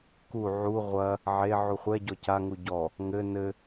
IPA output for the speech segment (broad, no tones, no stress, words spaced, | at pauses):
ku ʕu ʁʷɐ | ʕe ʕuχʷɛ ɟɔca ŋuɟɔ | ŋɘ nɘ